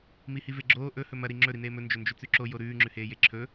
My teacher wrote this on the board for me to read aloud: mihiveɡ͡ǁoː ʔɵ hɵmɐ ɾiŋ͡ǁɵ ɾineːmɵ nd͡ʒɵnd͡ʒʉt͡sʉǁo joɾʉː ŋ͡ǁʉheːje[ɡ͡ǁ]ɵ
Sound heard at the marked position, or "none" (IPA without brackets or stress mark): ǁʰ